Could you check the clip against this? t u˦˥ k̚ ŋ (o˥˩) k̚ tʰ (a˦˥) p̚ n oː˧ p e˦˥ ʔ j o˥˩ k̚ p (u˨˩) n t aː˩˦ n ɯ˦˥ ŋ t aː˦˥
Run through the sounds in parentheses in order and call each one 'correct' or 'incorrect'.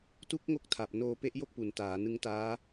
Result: correct, incorrect: a˨˩, correct

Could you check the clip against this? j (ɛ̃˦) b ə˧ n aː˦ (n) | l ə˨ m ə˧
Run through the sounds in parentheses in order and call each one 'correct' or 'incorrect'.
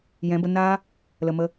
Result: incorrect: ɛ̃˨˦, incorrect: none

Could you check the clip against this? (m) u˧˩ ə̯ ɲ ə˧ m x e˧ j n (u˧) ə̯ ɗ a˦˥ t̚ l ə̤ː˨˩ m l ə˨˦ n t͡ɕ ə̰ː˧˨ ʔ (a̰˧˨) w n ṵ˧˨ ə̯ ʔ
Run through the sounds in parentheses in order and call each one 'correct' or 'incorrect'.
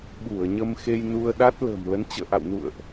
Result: incorrect: ɓ, correct, correct

